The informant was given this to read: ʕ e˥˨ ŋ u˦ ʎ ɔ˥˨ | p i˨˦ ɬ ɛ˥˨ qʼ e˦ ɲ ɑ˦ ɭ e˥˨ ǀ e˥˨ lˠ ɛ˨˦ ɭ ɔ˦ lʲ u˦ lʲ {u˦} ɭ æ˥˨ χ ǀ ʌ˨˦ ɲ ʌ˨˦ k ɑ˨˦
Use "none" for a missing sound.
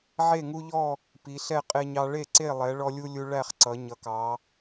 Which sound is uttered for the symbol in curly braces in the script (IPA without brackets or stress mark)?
u˦